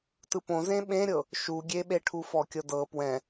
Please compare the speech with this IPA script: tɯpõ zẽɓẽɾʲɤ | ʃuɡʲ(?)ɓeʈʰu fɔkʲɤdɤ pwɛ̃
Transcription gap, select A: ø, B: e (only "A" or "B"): B